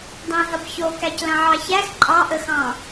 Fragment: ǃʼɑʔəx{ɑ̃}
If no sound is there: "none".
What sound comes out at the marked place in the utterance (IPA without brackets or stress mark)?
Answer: ɑ̃